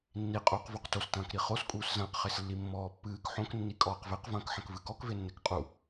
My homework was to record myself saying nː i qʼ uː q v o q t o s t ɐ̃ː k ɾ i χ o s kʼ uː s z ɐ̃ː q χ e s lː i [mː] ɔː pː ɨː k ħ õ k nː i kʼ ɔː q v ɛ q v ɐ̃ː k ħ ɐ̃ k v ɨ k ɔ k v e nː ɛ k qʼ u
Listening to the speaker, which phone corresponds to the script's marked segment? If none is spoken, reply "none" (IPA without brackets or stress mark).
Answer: mː